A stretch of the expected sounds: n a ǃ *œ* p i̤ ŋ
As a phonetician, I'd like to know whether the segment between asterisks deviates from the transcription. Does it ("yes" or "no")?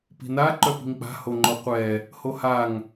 no